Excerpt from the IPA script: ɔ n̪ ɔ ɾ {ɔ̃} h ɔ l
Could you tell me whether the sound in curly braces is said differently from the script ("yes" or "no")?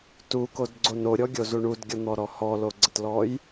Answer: yes